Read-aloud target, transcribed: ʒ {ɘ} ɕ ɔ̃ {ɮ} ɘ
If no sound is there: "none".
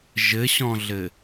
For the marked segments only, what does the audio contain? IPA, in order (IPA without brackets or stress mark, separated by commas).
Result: ɘ, ɮ